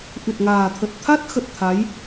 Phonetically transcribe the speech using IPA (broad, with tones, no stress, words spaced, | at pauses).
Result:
ʔɨ˨˩t̚ŋaː˨˩t̪ʰə˨˩t̚ t̪ʰa˦˥t̚xə˨˩t̚ t̪ʰa˨˦j